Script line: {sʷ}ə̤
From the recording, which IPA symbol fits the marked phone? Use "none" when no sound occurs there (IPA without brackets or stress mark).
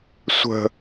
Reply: sʷ